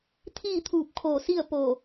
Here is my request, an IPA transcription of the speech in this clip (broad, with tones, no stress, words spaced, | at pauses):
t̪ʰiː˥˨t̪ʰuː˧˩p̚kʰoː˧˩ si˥˨ə̯ po˧˩